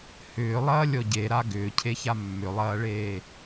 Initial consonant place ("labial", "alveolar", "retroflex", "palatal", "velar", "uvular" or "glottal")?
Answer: glottal